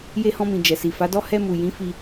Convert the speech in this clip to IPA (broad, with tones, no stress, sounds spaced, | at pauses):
j e˧ h ɔ̃˧ m ĩ˨ d͡ʒ ɛ˨ s i˨ f a˨˦ d ɔ˦ h ɛ˧ m u˨ j ĩ˨˦ f i˧